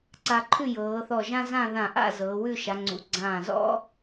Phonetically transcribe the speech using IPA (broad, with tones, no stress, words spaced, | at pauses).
ǀa˧ ǃʰʉ˥˧jɤː˩˧ θɔ˧˩ʒã˥zã˥˧ ðã˧˩ʔa̰˥˧ zɤː˩˧wʉ˥˧ʃa˩˧ŋ͡ǀṵ˩˧ ɡ͡ǀãː˧˩zɔ̰˥